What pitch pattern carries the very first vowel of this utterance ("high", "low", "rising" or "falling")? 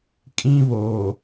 high